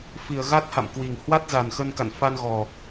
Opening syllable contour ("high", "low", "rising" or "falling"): low